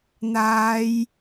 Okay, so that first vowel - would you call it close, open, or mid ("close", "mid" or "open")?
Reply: open